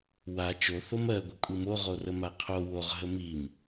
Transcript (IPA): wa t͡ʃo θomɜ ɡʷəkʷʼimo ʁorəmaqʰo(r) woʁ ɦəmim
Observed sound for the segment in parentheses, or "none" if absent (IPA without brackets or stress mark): none